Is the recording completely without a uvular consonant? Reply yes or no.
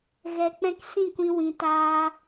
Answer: yes